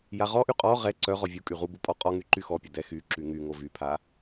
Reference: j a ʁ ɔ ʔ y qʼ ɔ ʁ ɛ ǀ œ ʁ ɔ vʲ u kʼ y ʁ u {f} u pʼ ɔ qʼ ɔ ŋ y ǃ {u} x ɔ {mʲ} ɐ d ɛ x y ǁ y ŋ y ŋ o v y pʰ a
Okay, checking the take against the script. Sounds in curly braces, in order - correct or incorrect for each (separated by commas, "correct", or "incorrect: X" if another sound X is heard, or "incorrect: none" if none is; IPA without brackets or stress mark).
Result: incorrect: b, incorrect: y, incorrect: pʲ